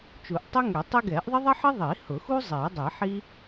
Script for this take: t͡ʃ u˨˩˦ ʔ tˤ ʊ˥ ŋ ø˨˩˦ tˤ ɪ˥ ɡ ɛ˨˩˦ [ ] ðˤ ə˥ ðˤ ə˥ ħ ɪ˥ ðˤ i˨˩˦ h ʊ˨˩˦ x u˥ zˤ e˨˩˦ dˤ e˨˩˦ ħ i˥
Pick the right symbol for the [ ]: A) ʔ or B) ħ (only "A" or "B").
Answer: A